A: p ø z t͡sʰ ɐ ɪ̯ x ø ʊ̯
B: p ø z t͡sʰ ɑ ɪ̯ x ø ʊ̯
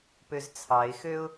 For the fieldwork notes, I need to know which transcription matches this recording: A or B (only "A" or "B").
B